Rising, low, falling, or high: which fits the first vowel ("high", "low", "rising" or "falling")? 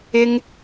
high